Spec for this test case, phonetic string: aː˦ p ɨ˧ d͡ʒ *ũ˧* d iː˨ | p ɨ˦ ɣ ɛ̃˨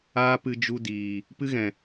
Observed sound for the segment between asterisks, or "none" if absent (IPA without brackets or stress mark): u˧